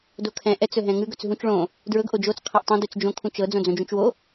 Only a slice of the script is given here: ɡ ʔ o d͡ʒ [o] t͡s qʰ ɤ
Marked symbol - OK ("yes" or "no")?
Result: yes